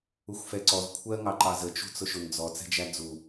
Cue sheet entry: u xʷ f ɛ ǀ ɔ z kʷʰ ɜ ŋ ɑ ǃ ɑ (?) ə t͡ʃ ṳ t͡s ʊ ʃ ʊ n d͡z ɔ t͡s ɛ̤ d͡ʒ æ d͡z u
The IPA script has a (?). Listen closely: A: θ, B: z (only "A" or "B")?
B